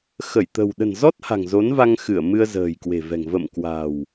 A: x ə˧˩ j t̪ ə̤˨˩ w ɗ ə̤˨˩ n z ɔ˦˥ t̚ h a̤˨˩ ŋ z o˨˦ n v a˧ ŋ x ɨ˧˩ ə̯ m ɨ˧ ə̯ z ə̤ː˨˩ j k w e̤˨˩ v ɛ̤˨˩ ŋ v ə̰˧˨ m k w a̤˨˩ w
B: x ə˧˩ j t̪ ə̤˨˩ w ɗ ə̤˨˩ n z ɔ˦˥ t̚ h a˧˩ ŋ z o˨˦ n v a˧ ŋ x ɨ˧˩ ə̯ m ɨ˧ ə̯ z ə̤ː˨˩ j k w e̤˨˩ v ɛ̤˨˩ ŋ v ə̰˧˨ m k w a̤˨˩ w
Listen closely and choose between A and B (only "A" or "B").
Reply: A